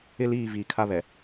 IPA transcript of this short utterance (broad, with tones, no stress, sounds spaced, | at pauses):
ɪ˦ l iː˦˨ v iː˨ kʰ a˦ β ɛ˨